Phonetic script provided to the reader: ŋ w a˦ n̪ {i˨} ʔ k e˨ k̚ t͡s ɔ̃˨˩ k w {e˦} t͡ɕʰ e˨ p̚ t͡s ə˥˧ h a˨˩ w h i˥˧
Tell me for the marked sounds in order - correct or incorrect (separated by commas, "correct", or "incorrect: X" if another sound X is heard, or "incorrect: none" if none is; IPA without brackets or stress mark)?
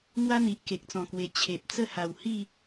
correct, incorrect: e˨˩